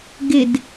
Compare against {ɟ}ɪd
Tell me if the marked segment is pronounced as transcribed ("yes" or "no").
no